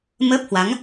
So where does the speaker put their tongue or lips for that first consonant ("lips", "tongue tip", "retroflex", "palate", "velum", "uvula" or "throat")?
lips